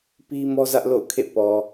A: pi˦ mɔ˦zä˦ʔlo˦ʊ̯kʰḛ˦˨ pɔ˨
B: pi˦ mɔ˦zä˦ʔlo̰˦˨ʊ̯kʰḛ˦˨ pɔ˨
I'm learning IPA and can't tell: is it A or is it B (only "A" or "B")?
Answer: B